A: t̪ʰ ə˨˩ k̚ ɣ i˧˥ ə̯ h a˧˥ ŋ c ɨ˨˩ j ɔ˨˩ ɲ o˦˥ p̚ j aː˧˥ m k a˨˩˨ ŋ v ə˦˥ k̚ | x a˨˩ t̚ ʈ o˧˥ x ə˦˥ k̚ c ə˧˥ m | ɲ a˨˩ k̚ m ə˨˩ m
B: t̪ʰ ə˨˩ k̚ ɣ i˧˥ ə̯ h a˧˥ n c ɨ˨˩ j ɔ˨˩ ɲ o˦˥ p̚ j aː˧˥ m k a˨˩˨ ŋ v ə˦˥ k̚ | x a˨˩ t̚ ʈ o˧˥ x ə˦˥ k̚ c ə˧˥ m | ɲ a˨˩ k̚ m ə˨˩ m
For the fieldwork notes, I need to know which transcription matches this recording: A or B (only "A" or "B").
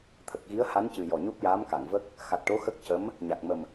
B